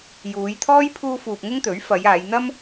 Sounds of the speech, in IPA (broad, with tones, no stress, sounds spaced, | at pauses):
j uː˨˧ j t̪ʰ ɔː˥ j pʰ uː˧ f uː˨ p̚ ŋ ʊ˥ ŋ t̪ ɵ˨˥ ɥ f ɐ˨˧ j aː˨˧ j n̪ ɐ˥ m